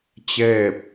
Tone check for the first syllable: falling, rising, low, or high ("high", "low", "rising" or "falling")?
falling